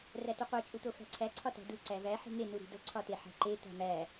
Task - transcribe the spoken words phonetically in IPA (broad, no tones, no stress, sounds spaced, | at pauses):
r æ t u qʷ e t͡ʃʼ u t̪ o f æ̤ ǀʰ æ ǀʰ ɒ t æ̤ d u ǀ æ v æ ħ i̤ ŋ e n u ɾ i̤ d o ǀʰ ɒ t e ħ æ̤ ǃ e t̪ æ̤ m æ